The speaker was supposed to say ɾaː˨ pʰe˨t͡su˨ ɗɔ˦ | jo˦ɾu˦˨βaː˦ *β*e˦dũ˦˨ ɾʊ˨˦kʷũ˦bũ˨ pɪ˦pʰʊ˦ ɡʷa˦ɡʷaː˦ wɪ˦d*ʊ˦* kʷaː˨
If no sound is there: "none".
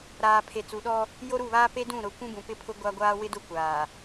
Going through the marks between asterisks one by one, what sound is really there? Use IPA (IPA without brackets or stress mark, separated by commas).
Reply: p, ʊ˦